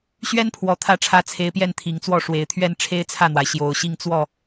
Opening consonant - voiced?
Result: no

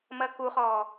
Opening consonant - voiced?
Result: yes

